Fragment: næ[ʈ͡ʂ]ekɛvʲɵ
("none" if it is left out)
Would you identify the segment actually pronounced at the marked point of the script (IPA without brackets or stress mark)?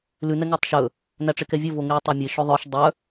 ʈ͡ʂ